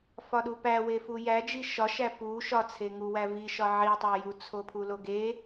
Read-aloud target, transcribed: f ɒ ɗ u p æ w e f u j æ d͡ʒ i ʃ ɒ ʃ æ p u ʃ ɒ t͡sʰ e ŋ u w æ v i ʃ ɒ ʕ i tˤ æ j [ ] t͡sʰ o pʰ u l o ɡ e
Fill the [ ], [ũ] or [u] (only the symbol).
u